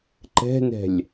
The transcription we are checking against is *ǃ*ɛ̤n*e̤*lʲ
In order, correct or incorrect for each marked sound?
correct, incorrect: ɛ̤

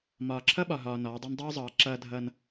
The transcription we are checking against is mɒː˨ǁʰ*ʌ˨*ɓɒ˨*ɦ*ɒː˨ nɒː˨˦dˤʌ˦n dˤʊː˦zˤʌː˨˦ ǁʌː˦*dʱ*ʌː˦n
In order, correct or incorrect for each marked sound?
incorrect: ʌ˦, correct, correct

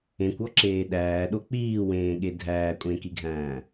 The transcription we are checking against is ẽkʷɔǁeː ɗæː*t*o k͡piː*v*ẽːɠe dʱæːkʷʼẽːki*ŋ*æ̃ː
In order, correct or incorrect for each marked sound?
incorrect: ɗ, incorrect: w, incorrect: ɡʱ

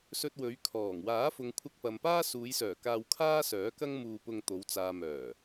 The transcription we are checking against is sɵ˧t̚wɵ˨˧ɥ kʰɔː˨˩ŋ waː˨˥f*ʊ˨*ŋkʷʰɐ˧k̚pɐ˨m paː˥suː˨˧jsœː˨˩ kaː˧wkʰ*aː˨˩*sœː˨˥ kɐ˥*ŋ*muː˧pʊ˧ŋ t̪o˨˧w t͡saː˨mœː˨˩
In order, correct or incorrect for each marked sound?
correct, incorrect: aː˥, correct

